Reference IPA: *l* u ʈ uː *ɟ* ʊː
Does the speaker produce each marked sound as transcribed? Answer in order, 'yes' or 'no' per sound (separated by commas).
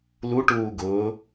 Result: yes, no